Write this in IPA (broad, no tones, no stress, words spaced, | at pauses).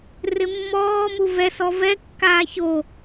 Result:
rɪmːɔːmu vɛsɔ vɛkːaː ço